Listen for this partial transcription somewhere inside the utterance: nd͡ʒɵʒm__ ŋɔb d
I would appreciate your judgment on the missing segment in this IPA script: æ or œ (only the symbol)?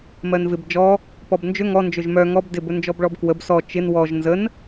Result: œ